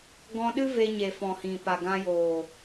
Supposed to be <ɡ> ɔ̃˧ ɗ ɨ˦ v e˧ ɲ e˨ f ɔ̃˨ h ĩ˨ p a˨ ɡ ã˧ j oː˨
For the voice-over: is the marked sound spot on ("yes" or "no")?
yes